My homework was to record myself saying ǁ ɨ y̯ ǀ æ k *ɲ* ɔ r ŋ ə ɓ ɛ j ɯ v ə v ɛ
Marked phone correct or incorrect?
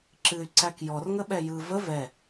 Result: incorrect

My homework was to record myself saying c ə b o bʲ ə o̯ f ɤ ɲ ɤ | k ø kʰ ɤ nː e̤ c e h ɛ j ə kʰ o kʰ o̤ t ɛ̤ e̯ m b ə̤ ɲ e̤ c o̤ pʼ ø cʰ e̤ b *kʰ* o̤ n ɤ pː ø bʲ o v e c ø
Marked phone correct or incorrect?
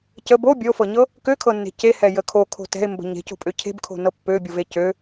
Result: correct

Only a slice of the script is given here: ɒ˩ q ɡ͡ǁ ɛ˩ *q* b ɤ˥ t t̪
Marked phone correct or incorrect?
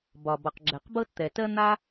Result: correct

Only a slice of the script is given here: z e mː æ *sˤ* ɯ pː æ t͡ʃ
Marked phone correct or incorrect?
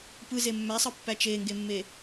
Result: correct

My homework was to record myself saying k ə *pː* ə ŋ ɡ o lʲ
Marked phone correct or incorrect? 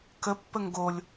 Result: correct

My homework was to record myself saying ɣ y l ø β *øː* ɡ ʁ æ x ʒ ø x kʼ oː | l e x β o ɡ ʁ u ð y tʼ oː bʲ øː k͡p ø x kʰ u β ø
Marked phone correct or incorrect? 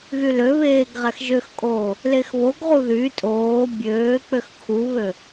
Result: incorrect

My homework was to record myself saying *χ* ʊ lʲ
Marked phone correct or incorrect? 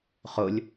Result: correct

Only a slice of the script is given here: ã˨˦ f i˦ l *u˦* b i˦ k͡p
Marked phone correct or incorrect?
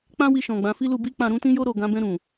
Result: incorrect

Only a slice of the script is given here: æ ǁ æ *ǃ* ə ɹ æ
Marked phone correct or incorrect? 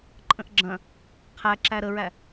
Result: incorrect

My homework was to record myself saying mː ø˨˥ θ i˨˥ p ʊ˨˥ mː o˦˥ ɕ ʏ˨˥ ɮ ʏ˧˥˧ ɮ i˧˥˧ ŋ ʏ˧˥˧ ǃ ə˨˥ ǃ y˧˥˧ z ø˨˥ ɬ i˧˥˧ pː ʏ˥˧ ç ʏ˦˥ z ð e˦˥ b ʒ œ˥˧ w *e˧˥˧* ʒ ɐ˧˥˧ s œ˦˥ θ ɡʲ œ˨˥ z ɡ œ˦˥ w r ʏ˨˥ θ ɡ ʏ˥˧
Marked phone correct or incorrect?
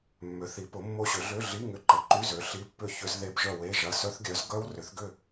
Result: correct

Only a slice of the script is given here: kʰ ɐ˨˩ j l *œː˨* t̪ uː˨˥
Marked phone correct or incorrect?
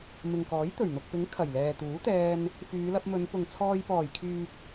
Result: incorrect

